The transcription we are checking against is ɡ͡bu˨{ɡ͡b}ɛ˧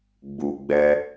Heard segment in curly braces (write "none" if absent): ɡ͡b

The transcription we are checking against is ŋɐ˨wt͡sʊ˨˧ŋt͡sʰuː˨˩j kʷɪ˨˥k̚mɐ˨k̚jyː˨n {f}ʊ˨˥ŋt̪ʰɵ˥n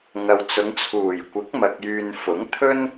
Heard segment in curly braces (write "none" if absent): f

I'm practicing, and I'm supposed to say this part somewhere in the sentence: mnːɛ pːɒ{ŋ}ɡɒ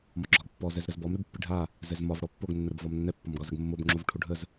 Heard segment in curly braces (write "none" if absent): m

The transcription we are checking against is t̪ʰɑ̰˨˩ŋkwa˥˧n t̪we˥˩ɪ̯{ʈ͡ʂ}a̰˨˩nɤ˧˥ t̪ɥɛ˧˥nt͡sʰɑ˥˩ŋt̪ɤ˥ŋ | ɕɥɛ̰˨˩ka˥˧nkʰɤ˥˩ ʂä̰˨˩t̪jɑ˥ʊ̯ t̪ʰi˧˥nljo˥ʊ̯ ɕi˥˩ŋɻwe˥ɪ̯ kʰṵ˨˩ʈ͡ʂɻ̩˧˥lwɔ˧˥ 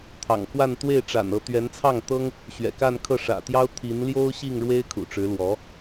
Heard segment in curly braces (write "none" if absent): ʈ͡ʂ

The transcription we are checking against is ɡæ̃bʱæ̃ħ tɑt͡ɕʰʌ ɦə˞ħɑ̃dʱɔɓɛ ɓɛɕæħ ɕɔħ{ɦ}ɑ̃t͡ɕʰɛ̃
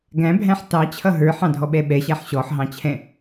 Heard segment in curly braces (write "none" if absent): ɦ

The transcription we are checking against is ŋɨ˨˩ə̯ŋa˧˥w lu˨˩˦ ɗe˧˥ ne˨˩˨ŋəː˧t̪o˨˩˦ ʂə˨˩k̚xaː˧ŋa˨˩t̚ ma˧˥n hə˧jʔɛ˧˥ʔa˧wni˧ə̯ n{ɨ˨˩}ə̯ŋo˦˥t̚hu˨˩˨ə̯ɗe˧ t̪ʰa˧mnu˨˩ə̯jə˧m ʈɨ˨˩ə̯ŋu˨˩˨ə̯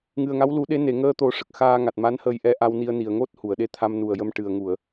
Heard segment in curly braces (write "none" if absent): i˨˩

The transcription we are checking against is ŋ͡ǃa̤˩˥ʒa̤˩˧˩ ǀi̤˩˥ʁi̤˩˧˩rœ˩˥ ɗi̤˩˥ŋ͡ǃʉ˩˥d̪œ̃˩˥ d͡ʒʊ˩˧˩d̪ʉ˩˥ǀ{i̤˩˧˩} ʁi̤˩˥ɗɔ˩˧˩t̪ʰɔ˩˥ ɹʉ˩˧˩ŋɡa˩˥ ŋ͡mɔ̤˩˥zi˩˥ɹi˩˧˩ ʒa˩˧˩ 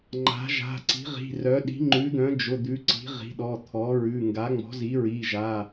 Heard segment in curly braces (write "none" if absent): i̤˩˥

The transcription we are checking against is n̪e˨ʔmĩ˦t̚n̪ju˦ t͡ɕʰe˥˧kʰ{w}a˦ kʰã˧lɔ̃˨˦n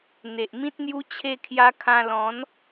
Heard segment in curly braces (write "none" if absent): j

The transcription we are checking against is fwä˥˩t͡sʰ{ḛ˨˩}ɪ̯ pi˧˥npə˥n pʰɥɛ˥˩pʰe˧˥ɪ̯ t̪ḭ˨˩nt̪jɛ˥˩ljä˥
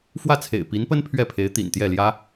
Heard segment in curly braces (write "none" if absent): ḛ˨˩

